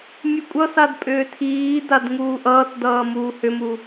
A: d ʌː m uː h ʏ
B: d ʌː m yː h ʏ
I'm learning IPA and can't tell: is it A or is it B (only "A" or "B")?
A